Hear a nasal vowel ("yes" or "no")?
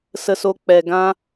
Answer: yes